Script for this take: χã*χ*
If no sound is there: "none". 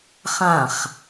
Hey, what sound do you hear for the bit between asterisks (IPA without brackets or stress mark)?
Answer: χ